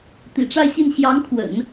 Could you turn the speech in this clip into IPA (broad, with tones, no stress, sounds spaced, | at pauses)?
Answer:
t̪ ḭ˨˩ ʈ͡ʂ a˥˧ ɪ̯ ɕ i˥˩ n ɕ j ɑ˧˥ ŋ kʰ w ə̰˨˩˦ n